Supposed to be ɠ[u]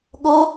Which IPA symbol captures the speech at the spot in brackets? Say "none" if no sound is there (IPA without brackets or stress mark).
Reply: o